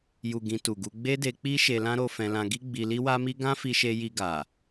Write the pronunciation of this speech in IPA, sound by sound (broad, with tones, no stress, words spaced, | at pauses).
ju˨ ɡĩ˧ tu˨ɡu˧ ɡ͡be˦de˧k͡pi˦ ʃe˧lã˦ ɾo˧ fɛ̃˧lã˧ ɡi˦ɡ͡bi˧li˦ wa˦mi˦ ɡã˦fi˧ʃe˧ ji˧ ɡa˨